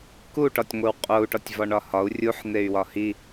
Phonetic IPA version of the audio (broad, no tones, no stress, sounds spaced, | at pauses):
k u ʈ ɒ tʲ ŋʷ e w qʼ o u̯ ʈ ɒ tʲ v ɒ ɳ ɒ h ɒ u̯ rʲ u ħ n̪ e y̯ w ɒ h i